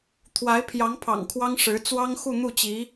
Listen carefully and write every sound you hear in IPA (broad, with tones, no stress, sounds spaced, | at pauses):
t̪ʰ w a˧˥ ɪ̯ pʰ j ɑ˧˥ ŋ pʰ ɑ̰˨˩ ŋ kʰ w ɑ˥ ŋ ʂ ɻ̩˧˥ t͡s w ɑ˥ ŋ x u˥˧ n̪ u˥˩ t͡ɕ i˧˥